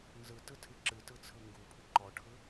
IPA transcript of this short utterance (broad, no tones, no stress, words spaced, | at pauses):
nzɯtɯtʰɨ ǁɨtɯt͡sʰɯ ŋɡupʰɨ ǃɔʈʰɯ